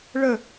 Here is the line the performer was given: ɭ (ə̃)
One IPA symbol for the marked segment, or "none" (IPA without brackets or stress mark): ə